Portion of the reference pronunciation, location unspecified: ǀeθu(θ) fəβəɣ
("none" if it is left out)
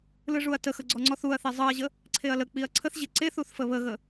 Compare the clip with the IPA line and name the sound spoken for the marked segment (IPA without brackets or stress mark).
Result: θ